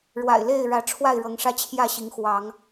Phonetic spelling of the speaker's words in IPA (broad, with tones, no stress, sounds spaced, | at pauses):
ɻ w a̰˨˩ ɪ̯ l e˥˨ ɪ̯ ɻ ä˨˦ ʈ͡ʂʰ w a˥˨ ɪ̯ ɻ ɤ˨˦ ŋ ʂ ä˦ t͡ɕʰ j ä˥˨ ɕ i˨˦ ŋ x w ɑ˨˦ ŋ